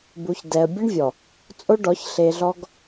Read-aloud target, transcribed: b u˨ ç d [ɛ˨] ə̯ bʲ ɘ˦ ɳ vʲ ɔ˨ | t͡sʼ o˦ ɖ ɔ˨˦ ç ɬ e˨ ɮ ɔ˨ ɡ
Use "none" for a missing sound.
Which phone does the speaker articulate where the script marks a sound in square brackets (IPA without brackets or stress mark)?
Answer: ɛ˨